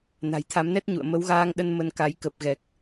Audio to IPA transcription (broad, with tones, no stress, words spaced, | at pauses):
na̤˨˩jt̪ʰa˨˦mnɛ˦˥t̚ɲṵ˧˨ə̯ mə˨˦wɣaː˧ŋɗə˧n mə˧nka˨˦j kə˨˩p̚ɣɛ˨˩k̚